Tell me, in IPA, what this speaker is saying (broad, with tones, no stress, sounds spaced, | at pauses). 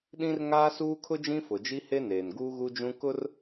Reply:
ɗ ĩ˦ r ŋ aː˦ s uː˦ kʰ ʊ˦ d͡ʒ ĩ˦ f ʊ˨ d͡ʒ i˦ h e˦ n eː˨ n ɡ uː˦ ɣ u˦ d͡ʒ ũ˦ k ʊ˦ r